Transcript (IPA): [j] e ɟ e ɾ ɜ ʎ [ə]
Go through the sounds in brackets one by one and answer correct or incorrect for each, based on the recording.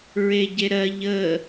incorrect: ɹ, correct

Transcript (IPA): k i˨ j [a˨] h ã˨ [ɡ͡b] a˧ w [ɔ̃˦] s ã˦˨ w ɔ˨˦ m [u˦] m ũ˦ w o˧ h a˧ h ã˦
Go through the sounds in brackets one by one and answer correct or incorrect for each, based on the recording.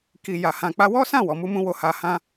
correct, incorrect: k͡p, incorrect: ɔ˦, correct

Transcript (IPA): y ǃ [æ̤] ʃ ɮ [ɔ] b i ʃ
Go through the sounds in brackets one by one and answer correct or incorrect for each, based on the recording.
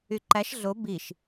incorrect: æ, incorrect: o

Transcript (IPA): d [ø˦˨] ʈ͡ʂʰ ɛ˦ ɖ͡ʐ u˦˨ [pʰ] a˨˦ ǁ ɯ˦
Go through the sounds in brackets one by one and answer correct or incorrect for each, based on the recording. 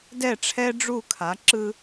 incorrect: ɛ˦˨, incorrect: kʰ

